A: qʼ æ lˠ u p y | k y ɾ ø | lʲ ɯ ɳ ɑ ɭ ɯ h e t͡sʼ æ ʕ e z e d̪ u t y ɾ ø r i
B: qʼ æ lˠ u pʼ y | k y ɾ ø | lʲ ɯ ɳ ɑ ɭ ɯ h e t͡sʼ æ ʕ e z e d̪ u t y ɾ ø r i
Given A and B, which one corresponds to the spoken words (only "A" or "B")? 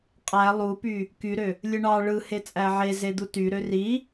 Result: A